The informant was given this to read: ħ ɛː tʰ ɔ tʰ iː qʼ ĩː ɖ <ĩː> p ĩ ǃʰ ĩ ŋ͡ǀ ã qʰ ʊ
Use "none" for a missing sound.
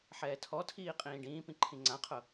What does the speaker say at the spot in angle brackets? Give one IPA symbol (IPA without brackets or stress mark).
ĩː